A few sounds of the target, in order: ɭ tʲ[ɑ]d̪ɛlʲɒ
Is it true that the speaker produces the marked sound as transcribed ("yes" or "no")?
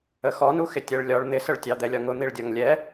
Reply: yes